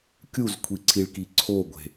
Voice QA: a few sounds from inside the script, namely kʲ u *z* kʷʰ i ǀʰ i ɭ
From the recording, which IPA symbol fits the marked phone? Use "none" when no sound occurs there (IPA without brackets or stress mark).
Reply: z